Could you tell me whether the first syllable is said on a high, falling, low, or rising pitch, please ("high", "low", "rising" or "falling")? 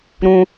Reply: high